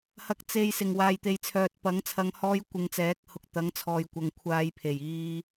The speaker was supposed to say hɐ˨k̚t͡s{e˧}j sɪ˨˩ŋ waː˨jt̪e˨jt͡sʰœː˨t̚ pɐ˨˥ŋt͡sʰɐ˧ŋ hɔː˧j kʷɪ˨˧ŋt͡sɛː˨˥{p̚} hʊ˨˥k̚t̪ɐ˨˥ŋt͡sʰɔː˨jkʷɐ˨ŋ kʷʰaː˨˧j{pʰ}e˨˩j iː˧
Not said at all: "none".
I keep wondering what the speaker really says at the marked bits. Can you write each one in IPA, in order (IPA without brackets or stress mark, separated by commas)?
e˨, k̚, pʰ